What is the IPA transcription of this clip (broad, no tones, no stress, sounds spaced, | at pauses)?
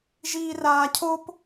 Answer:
ʒ iː r aː cʰ o p